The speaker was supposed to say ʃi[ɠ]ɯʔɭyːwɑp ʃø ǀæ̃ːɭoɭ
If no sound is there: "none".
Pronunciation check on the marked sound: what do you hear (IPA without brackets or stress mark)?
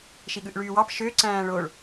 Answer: ɠ